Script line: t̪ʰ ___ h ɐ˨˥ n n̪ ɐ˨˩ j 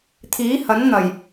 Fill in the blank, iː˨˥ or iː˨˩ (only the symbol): iː˨˥